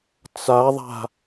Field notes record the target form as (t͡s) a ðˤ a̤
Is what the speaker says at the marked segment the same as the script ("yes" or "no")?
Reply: yes